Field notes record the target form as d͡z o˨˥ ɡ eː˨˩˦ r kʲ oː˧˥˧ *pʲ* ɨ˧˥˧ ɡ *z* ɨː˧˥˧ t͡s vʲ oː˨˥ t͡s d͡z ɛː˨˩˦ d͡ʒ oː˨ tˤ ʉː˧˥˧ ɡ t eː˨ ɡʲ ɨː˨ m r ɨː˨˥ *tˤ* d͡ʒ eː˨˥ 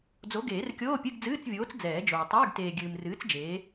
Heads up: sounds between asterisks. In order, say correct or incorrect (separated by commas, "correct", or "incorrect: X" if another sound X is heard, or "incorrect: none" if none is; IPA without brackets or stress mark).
correct, incorrect: d͡z, incorrect: t͡s